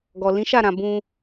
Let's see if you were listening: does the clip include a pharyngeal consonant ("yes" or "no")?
no